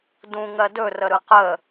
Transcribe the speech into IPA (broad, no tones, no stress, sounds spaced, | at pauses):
d ũ ŋ ɜ d ɵ r ə ɾ ɯ q ə